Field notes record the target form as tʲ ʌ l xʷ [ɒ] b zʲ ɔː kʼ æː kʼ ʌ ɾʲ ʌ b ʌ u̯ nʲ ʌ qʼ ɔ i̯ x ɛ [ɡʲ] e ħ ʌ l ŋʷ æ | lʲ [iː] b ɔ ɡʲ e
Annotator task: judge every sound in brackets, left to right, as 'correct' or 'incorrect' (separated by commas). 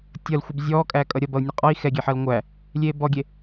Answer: incorrect, correct, incorrect